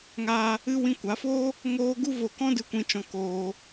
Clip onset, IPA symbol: ŋ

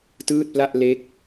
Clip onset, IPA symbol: t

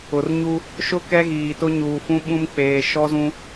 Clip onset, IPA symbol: ʊ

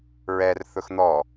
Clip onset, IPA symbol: ɹ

